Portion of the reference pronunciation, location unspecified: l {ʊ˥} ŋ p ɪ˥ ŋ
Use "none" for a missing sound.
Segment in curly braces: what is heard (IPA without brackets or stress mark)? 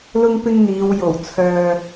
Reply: ʊ˥